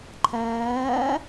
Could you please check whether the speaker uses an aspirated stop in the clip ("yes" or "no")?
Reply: yes